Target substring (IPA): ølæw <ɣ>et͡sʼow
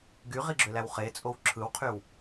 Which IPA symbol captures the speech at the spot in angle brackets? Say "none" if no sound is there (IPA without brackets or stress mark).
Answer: χ